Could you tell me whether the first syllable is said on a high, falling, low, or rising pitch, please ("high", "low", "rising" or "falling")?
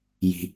low